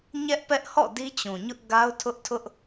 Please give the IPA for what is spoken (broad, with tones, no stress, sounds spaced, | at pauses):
ɲ ɛ˦ ʔ p ɛ˦ ʔ h ɔ̰˦˨ d i˦ t͡ɕ ũ˨ ɲ ʊ˦ ʔ ɡ a˦ ʊ̯ tʰ ʊ˦ ʔ tʰ ʊ˦ ʔ